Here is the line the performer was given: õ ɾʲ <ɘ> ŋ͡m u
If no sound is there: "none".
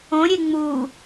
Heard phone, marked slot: e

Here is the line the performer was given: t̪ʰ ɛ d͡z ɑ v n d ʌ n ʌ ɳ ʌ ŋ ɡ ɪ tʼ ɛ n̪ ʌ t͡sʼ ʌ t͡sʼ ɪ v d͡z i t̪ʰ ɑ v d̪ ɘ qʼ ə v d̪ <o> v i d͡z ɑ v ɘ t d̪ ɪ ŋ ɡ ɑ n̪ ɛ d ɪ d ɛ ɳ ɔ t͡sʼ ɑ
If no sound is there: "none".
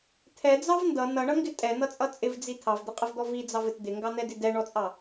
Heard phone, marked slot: ɔ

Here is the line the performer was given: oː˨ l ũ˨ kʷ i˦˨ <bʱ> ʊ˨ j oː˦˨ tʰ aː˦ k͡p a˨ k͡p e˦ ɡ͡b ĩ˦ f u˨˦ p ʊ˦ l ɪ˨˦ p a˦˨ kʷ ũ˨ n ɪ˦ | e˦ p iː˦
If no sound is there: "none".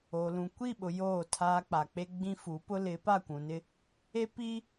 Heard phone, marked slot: ɓ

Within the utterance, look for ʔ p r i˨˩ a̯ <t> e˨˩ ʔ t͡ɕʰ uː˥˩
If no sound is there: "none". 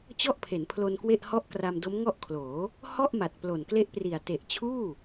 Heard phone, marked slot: t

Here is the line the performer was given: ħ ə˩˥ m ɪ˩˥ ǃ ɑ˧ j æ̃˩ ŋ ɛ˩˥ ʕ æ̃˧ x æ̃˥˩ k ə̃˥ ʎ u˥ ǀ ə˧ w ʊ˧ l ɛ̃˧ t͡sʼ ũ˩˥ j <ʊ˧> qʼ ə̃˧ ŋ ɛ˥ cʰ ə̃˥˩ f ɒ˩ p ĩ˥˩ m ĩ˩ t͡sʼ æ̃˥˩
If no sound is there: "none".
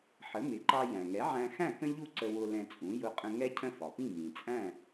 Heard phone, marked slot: ʊ˧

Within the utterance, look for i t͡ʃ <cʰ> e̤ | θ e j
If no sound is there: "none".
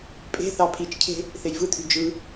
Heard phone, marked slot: cʰ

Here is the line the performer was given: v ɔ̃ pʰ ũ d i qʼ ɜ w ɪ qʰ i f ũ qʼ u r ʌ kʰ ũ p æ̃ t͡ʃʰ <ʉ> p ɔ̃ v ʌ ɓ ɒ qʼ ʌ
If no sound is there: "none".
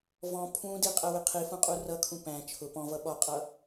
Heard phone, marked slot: ʊ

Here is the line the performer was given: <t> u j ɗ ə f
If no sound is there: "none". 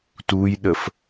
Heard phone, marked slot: t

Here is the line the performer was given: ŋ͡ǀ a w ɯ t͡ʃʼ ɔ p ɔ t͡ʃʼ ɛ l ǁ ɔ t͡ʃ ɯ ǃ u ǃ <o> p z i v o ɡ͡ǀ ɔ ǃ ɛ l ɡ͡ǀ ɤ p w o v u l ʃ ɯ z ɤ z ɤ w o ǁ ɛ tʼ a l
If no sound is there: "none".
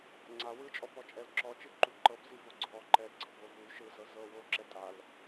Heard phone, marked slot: ɤ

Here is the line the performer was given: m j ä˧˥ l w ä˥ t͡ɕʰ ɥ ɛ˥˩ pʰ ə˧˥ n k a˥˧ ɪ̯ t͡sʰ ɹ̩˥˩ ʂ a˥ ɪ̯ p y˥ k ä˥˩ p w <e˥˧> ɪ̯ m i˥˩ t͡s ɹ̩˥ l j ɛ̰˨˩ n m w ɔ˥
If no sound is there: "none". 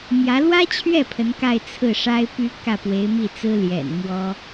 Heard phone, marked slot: e˧˥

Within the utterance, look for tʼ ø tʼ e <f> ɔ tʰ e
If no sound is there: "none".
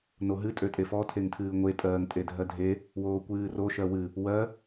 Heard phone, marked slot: f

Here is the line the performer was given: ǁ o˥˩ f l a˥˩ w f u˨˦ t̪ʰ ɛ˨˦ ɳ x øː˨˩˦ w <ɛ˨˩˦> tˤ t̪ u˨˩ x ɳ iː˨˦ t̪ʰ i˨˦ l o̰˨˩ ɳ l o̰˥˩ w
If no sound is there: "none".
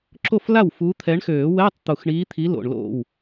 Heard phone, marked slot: ɛ˧˥˧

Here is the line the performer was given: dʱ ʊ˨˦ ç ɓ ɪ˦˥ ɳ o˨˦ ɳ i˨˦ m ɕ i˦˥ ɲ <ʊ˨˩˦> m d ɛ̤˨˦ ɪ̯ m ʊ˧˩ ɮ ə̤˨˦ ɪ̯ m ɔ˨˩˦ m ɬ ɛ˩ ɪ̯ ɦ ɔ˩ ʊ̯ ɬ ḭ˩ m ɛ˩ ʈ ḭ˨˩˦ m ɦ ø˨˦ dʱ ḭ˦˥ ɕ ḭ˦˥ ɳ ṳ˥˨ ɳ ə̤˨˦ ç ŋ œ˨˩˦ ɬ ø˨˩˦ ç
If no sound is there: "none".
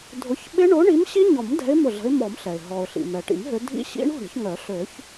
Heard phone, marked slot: ɔ˨˩˦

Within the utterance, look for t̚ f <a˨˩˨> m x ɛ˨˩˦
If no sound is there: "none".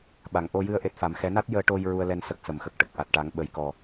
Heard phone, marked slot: a˨˩˨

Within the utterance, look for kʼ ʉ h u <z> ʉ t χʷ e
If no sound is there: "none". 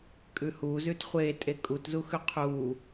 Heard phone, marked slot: z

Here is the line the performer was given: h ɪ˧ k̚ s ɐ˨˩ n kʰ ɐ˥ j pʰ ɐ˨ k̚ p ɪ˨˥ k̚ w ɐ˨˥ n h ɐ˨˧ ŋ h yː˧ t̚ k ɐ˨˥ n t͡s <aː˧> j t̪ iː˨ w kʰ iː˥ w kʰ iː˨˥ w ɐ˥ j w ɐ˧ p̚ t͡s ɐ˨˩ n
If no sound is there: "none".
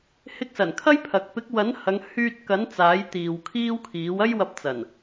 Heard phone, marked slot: aː˨˥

